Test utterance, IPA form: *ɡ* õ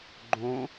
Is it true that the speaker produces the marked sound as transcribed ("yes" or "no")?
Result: no